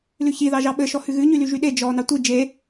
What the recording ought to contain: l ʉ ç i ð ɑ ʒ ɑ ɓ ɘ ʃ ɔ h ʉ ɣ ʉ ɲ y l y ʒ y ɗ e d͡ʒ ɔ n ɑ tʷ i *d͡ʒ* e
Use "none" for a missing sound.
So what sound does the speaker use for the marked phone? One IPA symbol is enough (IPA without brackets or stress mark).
d͡ʒ